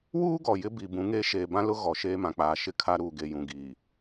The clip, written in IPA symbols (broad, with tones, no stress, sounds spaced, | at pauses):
w uː˦ ɡ ɔ˨ j ɪ˦ b i˨ b ũ˨˦ ŋ eː˦ ʃ eː˨ b ã˦ l ʊ˦ ɣ ɔ˨ ʃ eː˦ m ã˨ k͡p aː˨ ʃ ɪ˦ kʰ a˦ ɾ uː˨ ɡ e˨ j ũ˨ ɡ iː˨